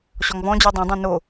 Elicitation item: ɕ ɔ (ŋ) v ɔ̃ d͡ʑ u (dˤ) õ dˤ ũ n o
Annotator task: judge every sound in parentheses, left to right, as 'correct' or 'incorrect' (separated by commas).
correct, correct